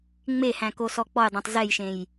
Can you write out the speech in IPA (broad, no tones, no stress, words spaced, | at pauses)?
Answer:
ŋ͡mehæ̃ kosɔk͡pɔjdˤẽtˤ zɛjʃẽj